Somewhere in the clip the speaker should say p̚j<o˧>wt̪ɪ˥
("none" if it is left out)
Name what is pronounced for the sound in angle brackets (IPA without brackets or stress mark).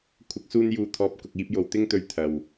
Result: o˨